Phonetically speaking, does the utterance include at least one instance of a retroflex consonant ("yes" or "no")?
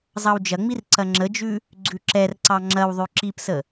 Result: no